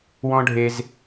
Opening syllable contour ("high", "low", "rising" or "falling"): high